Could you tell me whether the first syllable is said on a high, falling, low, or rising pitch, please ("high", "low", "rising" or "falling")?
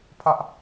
high